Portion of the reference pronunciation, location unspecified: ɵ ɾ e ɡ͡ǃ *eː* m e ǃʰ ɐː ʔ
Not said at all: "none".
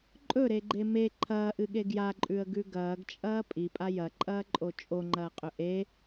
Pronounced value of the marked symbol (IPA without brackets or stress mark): e